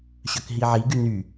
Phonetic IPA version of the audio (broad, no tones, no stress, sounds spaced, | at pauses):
ɕ œ k ɦ i ʕ i ɡ y n y